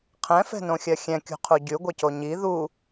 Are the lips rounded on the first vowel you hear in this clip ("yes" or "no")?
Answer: no